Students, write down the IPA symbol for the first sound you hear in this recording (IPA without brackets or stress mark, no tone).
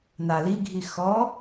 n